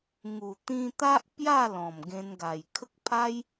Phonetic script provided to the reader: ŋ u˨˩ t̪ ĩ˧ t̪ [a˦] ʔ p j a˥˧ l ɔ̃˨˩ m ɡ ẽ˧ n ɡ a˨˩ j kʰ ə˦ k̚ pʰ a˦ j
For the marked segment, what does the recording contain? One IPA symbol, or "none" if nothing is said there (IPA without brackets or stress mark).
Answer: a˦